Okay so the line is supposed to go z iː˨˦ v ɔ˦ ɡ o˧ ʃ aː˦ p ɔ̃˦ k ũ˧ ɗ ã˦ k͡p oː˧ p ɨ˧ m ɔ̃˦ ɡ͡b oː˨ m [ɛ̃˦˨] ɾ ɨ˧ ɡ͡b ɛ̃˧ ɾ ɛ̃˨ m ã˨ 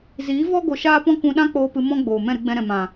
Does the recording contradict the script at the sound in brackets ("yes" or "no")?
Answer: no